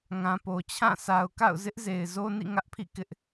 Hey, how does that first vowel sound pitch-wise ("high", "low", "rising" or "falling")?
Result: low